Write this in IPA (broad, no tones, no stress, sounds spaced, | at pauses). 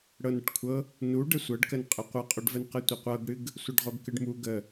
ɽ ɤ n ə ʈ kʷʰ ɤ | n u ɖ ə sʷ ɤ ɖ k ə n qʼ ə qʷ ɤ qʼ o ɖ v ə n q ɨ tʷ ə qʷ ɤ ɡ ɽ ɨ ɡ | sʷ ɤ ɖ ʁ o ɡ k ɨ ɖ m u ɡ ə